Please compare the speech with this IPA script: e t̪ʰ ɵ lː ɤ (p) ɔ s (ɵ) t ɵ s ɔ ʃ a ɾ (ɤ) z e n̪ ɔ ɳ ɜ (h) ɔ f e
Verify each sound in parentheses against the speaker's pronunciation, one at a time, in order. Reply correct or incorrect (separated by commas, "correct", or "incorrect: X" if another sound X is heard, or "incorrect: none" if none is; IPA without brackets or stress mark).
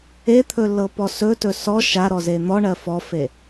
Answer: correct, correct, incorrect: ɔ, incorrect: f